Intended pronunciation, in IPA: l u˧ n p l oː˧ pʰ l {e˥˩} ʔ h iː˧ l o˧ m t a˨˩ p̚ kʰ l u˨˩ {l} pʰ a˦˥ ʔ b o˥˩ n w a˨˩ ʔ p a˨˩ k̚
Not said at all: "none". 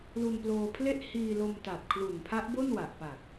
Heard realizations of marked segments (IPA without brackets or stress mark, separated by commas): e˥˩, n